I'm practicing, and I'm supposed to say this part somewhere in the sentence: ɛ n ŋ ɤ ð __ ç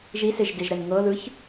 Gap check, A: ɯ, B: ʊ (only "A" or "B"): A